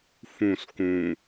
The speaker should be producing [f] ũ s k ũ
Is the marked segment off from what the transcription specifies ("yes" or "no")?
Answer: no